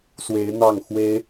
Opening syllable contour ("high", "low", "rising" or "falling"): rising